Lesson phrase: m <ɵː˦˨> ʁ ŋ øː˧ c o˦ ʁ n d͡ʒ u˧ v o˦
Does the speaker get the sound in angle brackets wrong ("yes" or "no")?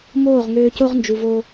yes